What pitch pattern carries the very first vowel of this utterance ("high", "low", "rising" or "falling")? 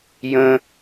high